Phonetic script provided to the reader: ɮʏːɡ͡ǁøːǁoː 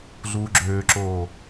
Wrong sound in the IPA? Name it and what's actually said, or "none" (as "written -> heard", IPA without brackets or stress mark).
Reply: ʏː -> uː